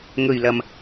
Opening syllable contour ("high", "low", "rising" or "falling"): low